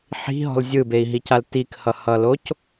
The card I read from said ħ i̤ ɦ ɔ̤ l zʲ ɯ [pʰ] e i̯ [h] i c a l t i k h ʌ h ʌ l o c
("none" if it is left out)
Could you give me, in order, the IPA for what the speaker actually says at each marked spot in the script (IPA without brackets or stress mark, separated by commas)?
b, ɦ